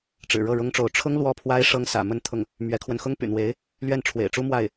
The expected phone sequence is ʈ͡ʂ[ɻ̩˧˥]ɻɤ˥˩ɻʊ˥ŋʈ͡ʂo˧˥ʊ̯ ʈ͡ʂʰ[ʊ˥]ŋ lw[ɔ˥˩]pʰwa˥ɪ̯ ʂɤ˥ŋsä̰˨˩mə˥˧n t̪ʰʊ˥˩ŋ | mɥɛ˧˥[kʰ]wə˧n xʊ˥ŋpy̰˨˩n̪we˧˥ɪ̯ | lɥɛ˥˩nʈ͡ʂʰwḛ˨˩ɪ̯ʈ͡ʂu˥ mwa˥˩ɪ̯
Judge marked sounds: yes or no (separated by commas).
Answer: no, yes, yes, yes